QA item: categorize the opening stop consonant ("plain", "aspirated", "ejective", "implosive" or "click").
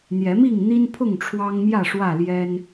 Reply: aspirated